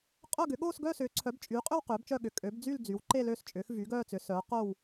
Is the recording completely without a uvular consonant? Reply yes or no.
no